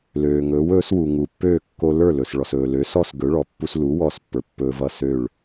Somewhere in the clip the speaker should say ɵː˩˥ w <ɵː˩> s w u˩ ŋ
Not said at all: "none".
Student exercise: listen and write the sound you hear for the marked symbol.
ɵː˩˥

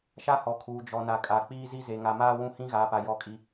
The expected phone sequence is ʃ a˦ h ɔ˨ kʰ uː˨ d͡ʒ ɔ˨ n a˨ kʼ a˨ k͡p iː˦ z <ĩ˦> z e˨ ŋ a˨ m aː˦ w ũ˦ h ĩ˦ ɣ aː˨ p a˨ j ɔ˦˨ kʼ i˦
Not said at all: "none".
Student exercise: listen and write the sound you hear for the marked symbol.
i˦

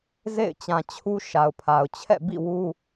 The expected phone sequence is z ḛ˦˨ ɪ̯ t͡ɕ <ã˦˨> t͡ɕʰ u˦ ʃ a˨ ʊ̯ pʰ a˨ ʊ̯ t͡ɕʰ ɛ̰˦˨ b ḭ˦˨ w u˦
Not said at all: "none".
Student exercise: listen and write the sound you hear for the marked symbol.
ã˨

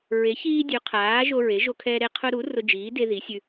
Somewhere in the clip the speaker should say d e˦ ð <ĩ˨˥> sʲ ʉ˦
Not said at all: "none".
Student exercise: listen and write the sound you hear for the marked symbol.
i˨˥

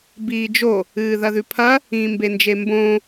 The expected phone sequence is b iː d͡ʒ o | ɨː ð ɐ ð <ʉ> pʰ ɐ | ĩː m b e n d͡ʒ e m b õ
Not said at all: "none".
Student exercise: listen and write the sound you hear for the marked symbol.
ʉ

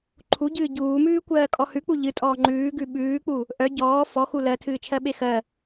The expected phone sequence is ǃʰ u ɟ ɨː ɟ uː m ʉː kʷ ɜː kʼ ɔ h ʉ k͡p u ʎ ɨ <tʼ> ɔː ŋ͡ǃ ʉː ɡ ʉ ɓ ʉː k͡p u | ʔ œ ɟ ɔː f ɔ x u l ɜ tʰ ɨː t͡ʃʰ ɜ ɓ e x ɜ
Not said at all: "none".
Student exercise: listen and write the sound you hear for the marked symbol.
tʼ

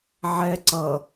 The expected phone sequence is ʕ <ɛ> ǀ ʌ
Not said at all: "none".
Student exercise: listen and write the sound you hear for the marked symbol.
ɛ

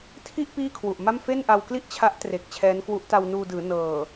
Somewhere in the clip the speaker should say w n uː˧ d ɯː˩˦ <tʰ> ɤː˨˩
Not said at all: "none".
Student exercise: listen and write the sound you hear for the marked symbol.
n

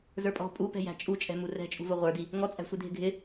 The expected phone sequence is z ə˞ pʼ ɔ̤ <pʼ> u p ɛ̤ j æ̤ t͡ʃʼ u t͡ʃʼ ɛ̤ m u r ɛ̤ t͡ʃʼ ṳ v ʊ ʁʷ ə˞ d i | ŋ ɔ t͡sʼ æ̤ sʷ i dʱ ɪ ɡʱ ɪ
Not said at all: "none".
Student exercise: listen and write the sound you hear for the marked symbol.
pʼ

